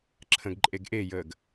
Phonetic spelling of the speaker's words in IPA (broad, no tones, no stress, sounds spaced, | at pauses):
ǁʰ ə̃ ɡ ǃʼ e ɡ ʔ e j əː ɡ